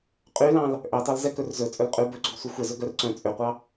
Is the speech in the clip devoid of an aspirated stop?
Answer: yes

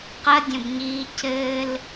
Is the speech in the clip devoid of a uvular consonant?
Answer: no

